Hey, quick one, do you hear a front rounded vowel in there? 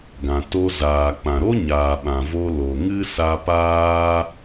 no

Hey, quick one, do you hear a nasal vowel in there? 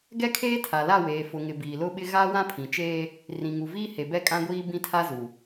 yes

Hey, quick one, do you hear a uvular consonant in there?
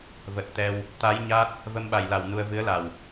no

